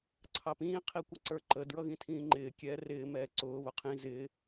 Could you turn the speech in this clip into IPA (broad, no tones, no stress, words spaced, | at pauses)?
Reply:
ǀʰɑpĩː qʰikʷəǀə˞ǃə dɹʌɣĩtʰĩːŋ͡ǃɪː kʲɛːrɪː mɛːǀʊː βʊqʰĩ zɪ